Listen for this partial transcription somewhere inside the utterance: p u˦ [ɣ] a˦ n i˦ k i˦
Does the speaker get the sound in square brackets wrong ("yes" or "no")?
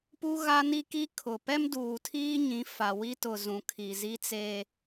no